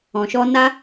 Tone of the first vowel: low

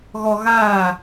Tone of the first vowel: low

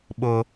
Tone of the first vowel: high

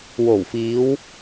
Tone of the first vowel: low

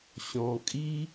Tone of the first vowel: low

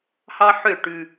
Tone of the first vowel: high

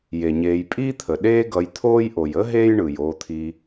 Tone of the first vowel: low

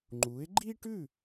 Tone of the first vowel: rising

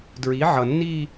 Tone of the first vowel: rising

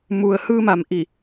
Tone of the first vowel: low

